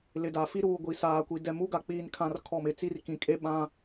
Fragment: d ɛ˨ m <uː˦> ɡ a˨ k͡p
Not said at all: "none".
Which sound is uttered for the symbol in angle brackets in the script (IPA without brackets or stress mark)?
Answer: u˦